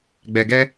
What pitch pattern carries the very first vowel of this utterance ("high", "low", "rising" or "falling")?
low